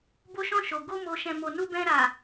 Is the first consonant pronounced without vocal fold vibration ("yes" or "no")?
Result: no